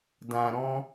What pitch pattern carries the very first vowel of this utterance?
low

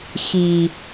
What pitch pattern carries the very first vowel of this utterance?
low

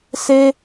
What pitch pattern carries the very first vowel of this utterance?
high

